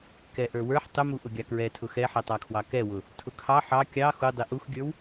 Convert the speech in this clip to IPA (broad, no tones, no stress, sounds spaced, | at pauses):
k ɛ ʔ ə˞ w ə˞ ħ tˤ ʊ m u ʔ ʊ ɡʲ ɑ k ɹ ɛ tʰ ʊ x ɛ ħ ɛ tˤ ɑ kʰ w ɑ k ɛ w ʊ | tʰ ʊ kʰ ɑ ħ ɑ kʲ ɑ x u dˤ i ʔ u x ɡʲ ə˞ w